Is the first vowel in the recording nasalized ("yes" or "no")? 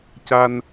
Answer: no